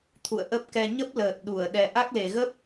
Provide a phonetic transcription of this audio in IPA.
t̪ʰ ṵ˧˨ ə̯ ʔ ə˦˥ p̚ k ɛ˧ ɲ ə˦˥ p̚ l əː˨˩ t̚ ɗ u˧˩ ə̯ ɗ ɛ˨˩ ʔ a˦˥ k̚ l e˨˩ ɣ ə˦˥ p̚

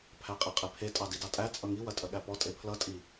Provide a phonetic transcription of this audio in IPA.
pʰ æ qʼ i qʼ e pʰ e tʼ ɑ d i d ɑ tʼ æ t͡sʼ ʌ ŋ i w ɐ tʼ ɐ ɠ æ p ɔ tʼ e pʰ l ʌ tʼ i

